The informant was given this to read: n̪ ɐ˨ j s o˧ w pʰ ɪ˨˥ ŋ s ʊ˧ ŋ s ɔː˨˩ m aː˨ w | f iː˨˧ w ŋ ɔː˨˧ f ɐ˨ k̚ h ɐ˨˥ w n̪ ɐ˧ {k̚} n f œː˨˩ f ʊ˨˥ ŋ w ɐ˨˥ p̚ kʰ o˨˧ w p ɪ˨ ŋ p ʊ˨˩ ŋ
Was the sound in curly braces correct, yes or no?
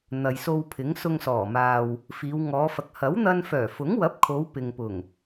no